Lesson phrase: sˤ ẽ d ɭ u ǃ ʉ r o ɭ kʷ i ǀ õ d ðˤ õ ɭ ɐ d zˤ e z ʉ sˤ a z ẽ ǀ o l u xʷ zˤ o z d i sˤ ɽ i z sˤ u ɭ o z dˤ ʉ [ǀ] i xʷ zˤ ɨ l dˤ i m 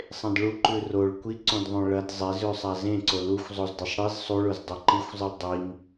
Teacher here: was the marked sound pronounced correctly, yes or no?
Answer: no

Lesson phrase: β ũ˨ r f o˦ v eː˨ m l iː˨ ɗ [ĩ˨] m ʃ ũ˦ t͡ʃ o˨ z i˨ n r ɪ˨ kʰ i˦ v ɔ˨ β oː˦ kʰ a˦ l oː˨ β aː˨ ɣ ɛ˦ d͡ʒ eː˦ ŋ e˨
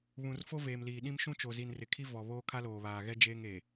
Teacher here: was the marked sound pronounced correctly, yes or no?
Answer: no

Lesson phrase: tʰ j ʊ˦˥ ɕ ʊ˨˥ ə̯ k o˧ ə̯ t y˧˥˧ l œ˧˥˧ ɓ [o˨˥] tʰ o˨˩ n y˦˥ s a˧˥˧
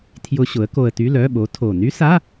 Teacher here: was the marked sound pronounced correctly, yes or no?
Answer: yes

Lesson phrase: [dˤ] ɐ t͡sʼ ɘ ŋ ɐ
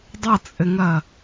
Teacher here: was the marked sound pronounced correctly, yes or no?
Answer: yes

